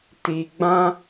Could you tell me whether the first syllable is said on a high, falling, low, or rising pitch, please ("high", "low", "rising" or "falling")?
low